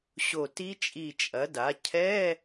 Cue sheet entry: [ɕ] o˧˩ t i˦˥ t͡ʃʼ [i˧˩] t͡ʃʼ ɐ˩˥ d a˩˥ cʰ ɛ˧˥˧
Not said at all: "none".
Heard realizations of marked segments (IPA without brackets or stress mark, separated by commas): ɕ, i˧˩